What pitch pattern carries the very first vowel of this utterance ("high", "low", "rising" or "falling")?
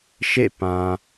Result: falling